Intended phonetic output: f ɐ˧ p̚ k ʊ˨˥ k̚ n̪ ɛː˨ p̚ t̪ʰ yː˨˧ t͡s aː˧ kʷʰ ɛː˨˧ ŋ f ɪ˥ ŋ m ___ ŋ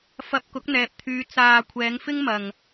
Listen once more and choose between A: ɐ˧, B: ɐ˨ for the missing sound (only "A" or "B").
B